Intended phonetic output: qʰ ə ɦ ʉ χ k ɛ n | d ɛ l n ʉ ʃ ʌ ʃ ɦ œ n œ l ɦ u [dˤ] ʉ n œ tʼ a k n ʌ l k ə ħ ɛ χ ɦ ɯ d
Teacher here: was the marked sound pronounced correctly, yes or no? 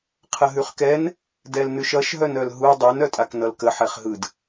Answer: yes